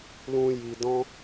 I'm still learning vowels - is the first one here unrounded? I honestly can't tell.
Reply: no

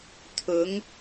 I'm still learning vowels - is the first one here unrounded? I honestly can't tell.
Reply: no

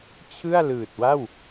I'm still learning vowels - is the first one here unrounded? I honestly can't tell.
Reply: yes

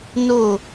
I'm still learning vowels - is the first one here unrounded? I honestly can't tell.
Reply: no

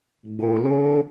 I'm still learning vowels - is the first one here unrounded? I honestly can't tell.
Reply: no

